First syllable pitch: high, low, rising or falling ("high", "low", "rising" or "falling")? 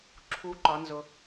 rising